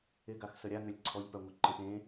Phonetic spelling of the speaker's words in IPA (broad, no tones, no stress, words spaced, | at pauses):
ɪɡaxsə ɾʲaŋʏlʲ ǀʰɔʎpœŋʷɪ ǃə̃p ẽ